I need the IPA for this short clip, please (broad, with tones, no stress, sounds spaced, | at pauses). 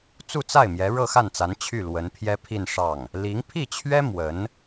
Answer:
t͡s u˥˧ t͡s a˥˩ ɪ̯ m j ɛ˧˥ ɻ ɤ˥˧ x a˥˩ n t͡s a˧˥ n t͡ɕʰ y˥˩ l w ə˧˥ n pʰ j ɛ˥ pʰ i˥˧ n ʂ ɑ˥˩ ŋ | l i˧˥ ŋ pʰ i˥˩ t͡ɕʰ ɥ ɛ˥ m w ə˧˥ n